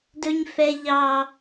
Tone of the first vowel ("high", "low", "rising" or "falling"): high